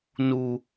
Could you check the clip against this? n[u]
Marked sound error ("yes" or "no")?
no